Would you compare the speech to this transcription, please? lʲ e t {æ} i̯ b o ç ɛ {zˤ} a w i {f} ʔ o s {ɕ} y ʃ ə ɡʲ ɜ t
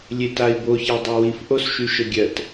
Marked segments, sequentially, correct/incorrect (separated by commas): incorrect, incorrect, correct, incorrect